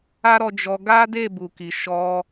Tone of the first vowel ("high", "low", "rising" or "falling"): high